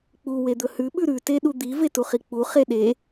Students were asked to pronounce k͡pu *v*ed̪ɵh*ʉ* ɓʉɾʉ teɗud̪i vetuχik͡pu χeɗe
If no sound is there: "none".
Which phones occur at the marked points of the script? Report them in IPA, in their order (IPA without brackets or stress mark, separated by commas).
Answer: w, ʉ